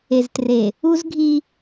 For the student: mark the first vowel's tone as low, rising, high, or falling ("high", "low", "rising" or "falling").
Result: low